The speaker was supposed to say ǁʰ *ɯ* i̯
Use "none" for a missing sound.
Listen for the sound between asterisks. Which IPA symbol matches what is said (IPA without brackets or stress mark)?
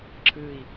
ɯ